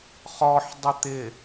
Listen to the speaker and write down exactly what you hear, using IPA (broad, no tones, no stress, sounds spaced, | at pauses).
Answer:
χ ɔ ħ dˤ ʊ t̪ ɪ